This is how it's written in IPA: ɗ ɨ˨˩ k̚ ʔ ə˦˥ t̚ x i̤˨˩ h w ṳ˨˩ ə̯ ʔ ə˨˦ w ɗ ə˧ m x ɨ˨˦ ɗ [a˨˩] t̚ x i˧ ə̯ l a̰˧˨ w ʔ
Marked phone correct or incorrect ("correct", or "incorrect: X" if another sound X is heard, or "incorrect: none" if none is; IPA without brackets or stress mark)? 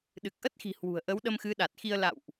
correct